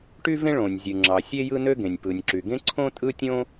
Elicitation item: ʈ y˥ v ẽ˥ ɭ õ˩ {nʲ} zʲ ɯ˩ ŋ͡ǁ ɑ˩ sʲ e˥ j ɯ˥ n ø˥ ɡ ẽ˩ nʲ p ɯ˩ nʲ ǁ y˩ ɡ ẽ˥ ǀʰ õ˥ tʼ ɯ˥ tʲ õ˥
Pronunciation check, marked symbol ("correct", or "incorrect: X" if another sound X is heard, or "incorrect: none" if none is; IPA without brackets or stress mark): correct